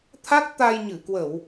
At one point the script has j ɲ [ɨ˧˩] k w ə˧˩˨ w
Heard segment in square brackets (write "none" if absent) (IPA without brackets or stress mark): ɨ˧˩